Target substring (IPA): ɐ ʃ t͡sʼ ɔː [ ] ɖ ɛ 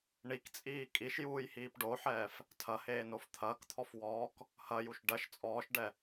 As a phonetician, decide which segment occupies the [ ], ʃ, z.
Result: ʃ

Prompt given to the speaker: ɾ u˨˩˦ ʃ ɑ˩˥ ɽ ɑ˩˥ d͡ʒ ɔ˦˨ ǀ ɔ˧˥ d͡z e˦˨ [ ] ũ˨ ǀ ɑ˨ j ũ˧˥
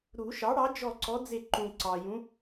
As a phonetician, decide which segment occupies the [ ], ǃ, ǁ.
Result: ǃ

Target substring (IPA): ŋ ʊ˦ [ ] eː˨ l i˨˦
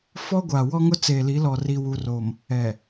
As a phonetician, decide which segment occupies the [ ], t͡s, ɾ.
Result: t͡s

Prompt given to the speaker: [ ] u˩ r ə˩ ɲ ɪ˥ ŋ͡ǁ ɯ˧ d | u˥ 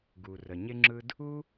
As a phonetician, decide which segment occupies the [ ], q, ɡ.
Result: ɡ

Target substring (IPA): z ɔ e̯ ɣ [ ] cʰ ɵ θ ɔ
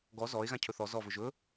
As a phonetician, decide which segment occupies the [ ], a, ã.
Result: ã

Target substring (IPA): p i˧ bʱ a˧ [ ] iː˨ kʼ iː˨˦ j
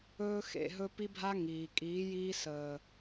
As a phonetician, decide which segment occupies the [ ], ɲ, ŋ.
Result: ŋ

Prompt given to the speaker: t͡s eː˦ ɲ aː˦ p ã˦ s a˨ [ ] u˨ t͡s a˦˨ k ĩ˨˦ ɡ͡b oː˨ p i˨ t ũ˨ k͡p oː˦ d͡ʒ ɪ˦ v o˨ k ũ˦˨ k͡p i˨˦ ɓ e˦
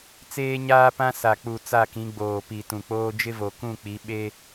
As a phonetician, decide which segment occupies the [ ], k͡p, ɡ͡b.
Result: k͡p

